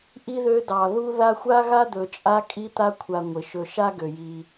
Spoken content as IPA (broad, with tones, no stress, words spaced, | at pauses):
ʔi˥ðø˦ dɑ˩ðu˦ða˦ xʷa˥ɣa˥d̪ɵ˨t͡ʃʼa˦ kʼi˦t̪a˦kʷʰa˨ ŋʷɪ˩ʃɵ˨ʃa˥ ɡø˩ji˩